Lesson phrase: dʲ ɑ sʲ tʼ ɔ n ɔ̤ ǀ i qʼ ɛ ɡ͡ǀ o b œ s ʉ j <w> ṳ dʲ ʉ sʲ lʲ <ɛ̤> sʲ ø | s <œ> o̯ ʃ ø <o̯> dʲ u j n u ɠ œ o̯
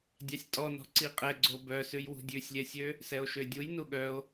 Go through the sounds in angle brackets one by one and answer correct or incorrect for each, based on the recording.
correct, incorrect, incorrect, incorrect

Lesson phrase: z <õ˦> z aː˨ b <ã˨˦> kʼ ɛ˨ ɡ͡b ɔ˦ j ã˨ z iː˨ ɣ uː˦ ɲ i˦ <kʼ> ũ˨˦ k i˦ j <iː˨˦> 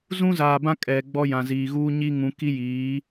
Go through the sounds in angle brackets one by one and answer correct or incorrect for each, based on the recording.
incorrect, incorrect, incorrect, correct

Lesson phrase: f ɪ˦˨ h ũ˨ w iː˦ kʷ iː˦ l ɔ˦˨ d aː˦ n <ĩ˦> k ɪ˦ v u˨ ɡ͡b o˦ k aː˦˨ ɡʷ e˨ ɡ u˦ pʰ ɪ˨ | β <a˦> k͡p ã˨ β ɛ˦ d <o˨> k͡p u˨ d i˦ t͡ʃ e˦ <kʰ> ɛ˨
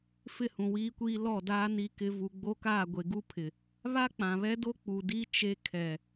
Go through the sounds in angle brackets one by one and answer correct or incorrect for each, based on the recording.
incorrect, correct, incorrect, correct

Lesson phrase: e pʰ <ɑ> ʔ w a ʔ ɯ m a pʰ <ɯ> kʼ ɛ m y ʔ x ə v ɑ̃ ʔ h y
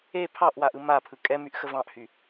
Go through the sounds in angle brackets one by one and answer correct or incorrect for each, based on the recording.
correct, correct

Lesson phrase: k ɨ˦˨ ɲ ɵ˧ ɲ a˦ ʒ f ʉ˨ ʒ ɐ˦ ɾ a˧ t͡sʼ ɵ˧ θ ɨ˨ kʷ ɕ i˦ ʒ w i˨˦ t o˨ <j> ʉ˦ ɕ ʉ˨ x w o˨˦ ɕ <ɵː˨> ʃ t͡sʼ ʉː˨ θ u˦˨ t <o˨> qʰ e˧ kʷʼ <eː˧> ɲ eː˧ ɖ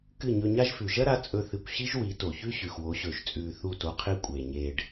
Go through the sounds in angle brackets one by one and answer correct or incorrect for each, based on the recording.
incorrect, correct, incorrect, incorrect

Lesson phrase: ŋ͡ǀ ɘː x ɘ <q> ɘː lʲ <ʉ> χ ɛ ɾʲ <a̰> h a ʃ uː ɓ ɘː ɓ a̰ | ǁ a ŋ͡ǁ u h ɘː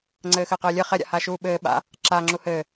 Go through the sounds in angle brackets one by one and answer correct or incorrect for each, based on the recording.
correct, incorrect, correct

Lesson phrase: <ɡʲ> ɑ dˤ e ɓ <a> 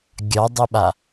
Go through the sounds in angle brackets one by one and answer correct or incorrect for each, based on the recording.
correct, correct

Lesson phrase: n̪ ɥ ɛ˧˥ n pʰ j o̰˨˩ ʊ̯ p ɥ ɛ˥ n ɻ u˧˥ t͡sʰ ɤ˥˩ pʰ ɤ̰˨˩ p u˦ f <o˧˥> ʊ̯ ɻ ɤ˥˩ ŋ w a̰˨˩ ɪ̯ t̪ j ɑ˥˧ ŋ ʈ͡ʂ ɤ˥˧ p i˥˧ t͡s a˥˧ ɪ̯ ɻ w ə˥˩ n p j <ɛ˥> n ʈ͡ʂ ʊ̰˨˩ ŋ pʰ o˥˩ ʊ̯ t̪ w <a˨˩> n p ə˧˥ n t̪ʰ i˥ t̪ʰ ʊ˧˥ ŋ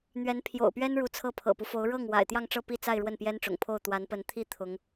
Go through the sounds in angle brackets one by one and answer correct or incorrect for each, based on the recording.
correct, correct, incorrect

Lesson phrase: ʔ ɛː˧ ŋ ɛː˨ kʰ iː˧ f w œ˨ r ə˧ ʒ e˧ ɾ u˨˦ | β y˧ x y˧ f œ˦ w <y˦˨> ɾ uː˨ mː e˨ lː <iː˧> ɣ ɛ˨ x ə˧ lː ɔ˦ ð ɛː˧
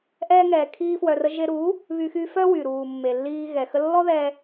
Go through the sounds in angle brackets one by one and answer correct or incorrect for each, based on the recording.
incorrect, correct

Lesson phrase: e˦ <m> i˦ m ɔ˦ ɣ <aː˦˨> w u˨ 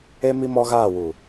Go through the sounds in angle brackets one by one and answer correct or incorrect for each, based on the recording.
correct, correct

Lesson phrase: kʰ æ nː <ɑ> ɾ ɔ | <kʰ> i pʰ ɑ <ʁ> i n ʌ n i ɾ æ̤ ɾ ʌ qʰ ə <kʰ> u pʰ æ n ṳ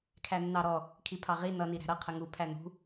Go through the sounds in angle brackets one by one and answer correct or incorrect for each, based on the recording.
correct, correct, correct, incorrect

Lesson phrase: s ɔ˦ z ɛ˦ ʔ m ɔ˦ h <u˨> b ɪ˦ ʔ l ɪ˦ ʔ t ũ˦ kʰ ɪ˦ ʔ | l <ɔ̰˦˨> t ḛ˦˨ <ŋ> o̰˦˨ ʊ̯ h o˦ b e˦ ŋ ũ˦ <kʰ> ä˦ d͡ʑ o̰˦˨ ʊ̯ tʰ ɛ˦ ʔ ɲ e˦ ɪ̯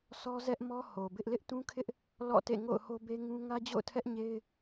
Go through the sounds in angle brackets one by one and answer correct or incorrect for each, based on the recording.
incorrect, correct, correct, incorrect

